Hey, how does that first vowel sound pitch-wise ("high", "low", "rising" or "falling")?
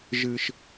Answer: low